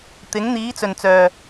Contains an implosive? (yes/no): no